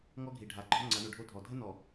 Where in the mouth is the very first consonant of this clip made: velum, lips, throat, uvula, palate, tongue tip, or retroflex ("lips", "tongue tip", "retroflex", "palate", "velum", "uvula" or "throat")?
velum